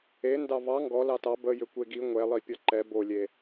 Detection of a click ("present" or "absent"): present